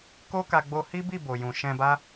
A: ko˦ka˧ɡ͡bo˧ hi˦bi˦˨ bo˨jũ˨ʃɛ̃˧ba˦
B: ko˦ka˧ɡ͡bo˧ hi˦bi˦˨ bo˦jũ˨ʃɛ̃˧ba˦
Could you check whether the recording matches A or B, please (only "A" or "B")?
A